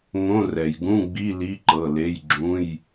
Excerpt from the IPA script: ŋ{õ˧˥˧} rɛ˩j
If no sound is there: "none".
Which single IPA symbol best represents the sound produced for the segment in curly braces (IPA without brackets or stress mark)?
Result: õ˧˥˧